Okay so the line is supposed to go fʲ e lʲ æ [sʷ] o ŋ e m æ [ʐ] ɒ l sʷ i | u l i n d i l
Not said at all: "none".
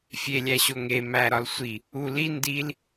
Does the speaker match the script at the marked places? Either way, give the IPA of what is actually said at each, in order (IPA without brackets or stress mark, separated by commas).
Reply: ɕ, ɾ